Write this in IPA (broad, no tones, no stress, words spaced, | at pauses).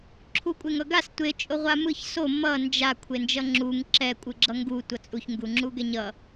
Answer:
ǁʰukʷʼeŋʌɡas tʷe t͡ʃʼoʁʷamɯç so mʌ nd͡ʒa kʷʰend͡ʒʌŋ͡ǁuŋ ǁɛ kʷʼɯɡ͡ǁʌŋɡu tʷʌt͡sʼuç ŋɡuŋ͡ǁuɡɛɲʌ